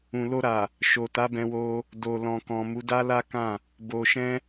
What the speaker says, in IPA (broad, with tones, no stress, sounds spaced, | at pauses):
ũ˨ l o˧ ɾ a˨ | ʃ o˨ t a˨˦ b ɛ̃˧ w o˧ | d o˨ l ɔ̃˨ k ɔ̃˨ m u˨˦ d a˦ l a˦ k ã˦˨ | b o˧ ʃ ɛ̃˦